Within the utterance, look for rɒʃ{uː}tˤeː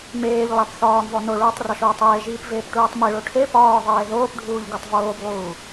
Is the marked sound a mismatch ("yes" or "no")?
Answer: yes